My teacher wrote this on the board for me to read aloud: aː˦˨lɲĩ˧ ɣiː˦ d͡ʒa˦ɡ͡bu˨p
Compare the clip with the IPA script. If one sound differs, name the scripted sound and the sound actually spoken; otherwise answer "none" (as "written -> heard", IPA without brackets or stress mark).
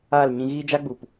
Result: none